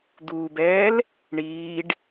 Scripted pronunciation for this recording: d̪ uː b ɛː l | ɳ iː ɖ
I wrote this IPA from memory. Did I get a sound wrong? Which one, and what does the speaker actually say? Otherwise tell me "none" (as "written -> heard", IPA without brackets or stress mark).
none